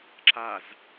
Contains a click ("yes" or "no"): yes